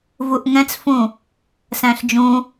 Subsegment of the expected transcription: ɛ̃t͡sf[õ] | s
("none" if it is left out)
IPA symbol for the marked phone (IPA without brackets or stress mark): ũ